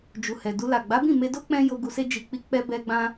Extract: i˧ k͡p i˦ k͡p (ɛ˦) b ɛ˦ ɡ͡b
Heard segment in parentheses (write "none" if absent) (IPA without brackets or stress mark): ɛ˦